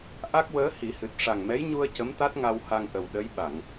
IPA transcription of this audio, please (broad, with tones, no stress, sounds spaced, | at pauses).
ʔ a˦˥ k̚ w əː˧˥ h i˨˩˦ h ɨ˨˩ t̚ ʂ a˨˩ ŋ m ɛ˧˥ j ɲ u˧ ə̯ c ə˧˥ m t̪ a˦˥ t̚ ŋ a˧ w h a˧ ŋ ʔ ə˨˩ w ɗ ə˧˥ j ɓ a˨˩˨ ŋ